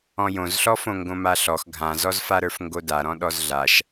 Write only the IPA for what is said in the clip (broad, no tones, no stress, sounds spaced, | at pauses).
ɔ̃ j õ z ɬ ɔ f õ ŋ ɡ õ m a ɬ ɔ x ɡʱ ã z ɔ z f a ɾ ə˞ f ŋ ɡ o d a ɾ ɔ̃ ɗ ɔ z ɮ a ʃ